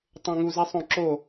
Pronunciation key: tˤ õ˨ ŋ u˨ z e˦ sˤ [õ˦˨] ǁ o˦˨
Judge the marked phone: correct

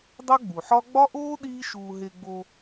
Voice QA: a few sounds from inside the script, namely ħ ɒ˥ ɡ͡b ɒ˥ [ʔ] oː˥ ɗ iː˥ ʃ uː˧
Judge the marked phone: correct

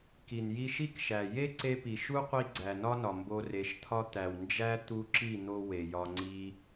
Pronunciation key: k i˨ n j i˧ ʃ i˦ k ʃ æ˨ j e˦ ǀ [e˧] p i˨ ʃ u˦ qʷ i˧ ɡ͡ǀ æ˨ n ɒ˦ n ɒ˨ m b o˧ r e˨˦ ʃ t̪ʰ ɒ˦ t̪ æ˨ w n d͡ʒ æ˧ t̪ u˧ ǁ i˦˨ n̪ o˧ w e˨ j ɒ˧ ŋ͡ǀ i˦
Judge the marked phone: correct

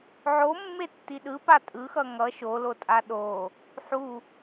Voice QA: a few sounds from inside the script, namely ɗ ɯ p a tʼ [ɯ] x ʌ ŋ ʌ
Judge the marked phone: correct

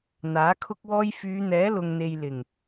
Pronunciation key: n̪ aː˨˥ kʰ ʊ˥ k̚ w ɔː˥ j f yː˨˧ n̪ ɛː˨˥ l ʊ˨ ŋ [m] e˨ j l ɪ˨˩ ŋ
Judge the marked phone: incorrect: n̪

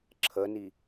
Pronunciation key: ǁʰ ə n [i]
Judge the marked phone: correct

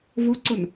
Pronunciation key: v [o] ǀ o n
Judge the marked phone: correct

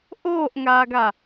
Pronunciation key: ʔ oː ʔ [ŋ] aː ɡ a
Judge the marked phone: correct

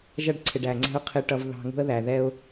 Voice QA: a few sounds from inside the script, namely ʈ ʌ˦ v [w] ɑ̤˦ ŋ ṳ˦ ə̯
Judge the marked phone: incorrect: ð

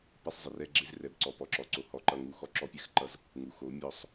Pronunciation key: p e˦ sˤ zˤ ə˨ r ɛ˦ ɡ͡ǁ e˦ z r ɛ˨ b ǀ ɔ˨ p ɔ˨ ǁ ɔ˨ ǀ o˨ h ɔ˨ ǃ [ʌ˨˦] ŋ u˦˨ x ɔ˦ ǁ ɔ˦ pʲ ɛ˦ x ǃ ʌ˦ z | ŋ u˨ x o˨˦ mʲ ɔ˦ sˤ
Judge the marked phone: incorrect: ʌ˦˨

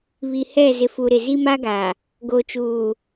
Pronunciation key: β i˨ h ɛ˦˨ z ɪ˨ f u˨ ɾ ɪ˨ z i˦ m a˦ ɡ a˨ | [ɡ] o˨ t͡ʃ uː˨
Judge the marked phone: correct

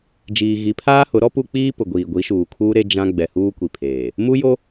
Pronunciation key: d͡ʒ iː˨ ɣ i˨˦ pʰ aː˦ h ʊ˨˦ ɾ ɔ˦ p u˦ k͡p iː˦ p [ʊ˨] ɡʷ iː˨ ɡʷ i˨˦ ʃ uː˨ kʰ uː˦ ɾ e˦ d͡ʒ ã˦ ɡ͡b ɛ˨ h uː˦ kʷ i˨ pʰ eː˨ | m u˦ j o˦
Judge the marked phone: correct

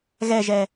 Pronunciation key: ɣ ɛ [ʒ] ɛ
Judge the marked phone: correct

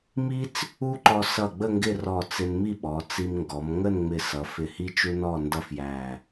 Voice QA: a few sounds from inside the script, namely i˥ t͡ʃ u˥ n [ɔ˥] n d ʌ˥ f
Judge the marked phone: incorrect: ɔ˥˧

